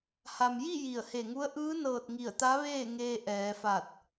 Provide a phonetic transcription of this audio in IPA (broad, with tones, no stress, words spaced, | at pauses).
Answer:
ha˩mji˥˨ ji˧˩ə̯he˧˩ŋu˧˥ə̯ ʔɯː˧˥nɤː˧˩t̚ ŋi˧˩ə̯t̪a˧˥ʋeː˥˨ŋeː˧ ʔɛː˩˧fa˧˩t̚